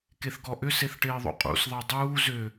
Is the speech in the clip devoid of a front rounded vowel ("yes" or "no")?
no